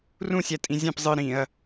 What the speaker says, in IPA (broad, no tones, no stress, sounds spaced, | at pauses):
r ũ sʲ æ tʼ ĩ zʲ æ̃ p zˤ ɯ ɾ ĩ ɐ̯